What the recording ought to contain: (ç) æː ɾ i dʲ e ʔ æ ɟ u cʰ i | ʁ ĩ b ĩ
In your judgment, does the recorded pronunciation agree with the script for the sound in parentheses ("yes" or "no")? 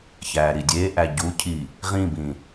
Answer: yes